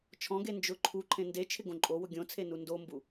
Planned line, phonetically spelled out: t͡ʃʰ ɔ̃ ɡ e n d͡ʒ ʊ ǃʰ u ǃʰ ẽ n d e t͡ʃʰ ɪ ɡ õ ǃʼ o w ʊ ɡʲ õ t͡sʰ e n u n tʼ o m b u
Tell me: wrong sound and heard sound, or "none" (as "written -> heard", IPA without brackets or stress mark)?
tʼ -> d